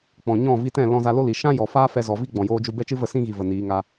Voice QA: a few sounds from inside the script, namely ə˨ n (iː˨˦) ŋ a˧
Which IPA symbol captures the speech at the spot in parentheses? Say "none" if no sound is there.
iː˨˦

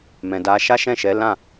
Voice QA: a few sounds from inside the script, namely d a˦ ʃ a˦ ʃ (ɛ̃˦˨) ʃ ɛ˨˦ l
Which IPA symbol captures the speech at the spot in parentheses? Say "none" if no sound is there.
ɛ̃˦˨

